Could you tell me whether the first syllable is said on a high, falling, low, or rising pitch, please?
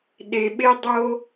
low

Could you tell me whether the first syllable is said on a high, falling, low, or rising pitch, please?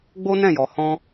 high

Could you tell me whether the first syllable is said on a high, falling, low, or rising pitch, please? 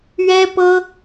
high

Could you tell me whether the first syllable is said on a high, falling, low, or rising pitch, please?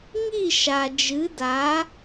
falling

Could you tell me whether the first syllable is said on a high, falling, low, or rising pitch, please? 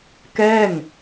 falling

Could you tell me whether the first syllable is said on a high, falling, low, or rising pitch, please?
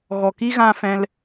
low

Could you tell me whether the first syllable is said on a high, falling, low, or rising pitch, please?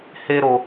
high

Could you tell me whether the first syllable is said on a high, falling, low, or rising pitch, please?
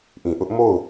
low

